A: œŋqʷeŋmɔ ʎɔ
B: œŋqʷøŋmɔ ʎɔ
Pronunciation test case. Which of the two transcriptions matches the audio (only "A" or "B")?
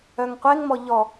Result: A